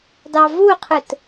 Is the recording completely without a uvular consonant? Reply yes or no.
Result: no